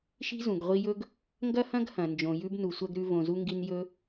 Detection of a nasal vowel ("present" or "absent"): present